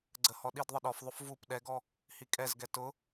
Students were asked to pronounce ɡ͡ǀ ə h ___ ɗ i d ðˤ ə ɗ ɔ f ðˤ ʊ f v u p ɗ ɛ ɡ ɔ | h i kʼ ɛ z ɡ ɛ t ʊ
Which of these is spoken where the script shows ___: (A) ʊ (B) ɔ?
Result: B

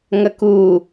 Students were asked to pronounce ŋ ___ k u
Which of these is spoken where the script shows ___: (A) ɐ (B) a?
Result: A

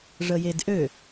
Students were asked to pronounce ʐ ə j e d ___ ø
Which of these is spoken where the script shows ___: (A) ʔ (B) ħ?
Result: A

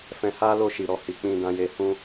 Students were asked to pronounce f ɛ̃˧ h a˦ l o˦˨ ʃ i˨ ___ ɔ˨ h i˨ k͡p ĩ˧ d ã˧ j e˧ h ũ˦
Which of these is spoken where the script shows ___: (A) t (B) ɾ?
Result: B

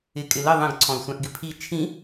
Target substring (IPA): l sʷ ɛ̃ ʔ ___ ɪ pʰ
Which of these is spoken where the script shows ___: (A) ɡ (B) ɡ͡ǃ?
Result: A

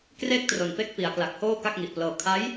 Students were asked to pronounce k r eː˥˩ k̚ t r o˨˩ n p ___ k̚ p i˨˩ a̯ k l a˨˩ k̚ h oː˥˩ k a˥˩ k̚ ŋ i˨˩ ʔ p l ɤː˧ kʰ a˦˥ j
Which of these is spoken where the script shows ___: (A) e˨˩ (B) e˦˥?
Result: B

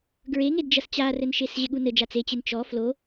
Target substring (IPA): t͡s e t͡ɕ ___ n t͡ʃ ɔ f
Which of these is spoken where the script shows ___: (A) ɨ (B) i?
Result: A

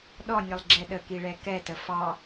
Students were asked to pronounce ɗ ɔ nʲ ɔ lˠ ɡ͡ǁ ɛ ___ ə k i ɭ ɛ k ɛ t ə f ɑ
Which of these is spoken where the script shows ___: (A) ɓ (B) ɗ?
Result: B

